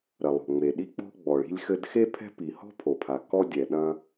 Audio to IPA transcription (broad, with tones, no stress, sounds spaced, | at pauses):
ɾ ɐ˩ lˠ o̤˩ ŋ͡m e˩ ɗ i˥ k͡p ɔ̤˥ ɡ͡b ɔ˩ ɭ i̤˥ lʲ x ɘ˥ d x e˥ pʰ ɛ̤˥ p i˩ h ɔ̤˥ pʰ o˩ pʰ a˩ k ɔ˥ dʲ ɛ˩ ɗ ɐ̃˥